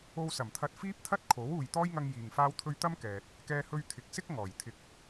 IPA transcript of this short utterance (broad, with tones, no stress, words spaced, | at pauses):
o˧wsɐ˨˩mt̪ʰɐ˧t̚ fiː˥p̚t̪ʰɐ˥t̚ kʰo˨˥w uː˨jt̪ɔː˥jŋɐ˧ŋ jiː˨ŋfaː˥wt̪ʰɵ˥ɥ t̪ɐ˥mkɛː˨t̚ | kɛː˥hɵ˥ɥ t̪ʰɪ˨k̚sɪ˥k̚ ŋɔː˨˩jt̪ʰɪ˧k̚